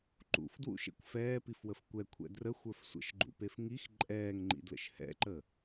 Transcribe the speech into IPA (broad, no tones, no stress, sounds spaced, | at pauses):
ǃ ṵ f d w ṵ ʃ ḛ kʷ f ɛː p i f w ə f kʷ ɛ kʷʰ ɛ̰ d r ə xʷ ə˞ f sʷ ə̰ ʃ ɡ͡ǃ ṵ p e f ŋ i x ǃʼ ɛː ŋ ŋ͡ǃ ḭ d l ə̰ ʃ h ɛ̰ ǃ ə